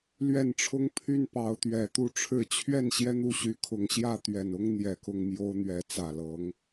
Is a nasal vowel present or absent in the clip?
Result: absent